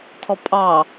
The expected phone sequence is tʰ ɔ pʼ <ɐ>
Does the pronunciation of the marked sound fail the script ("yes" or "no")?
yes